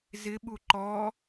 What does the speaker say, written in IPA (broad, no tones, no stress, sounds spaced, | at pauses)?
z ɪ ɓ u ǃ ɔ